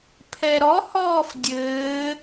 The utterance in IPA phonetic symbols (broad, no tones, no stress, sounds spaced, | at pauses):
pʰ ɛ ɾ ɔ h ɔː f dʲ ɘː